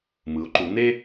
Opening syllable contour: rising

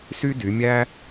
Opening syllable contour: high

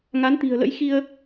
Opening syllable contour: rising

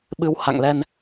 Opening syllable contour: rising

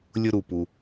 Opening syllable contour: high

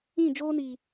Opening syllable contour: falling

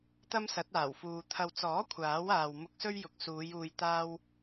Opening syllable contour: high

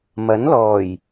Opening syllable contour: rising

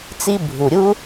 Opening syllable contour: high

